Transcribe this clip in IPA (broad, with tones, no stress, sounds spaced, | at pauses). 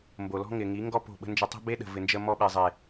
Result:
m b o˨ l ɔ̤˦ ŋ ɪ˨ ŋ i˨˦ ŋ ɡ ɔ˦ p o̤˦˨ ɓ ə̤˦ n d͡ʒ ə˧ tˤ ɛ̤˦ b e˦ ɗ ə̤˨ v ɪ˨ n d͡ʒ ə˧ m ɔ˧ ɓ e˨ zˤ e˨